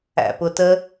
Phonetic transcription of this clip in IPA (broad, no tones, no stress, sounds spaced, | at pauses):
æ̰ p ʊ t ə